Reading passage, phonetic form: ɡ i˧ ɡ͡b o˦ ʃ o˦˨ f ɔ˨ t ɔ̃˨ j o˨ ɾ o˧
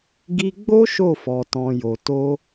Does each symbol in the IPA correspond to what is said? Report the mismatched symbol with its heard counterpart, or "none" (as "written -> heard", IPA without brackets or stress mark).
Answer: ɾ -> t